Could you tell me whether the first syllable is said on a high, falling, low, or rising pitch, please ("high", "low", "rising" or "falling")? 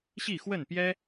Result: falling